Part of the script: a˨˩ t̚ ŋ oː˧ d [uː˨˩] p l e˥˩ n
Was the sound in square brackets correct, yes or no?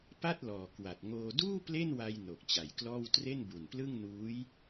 no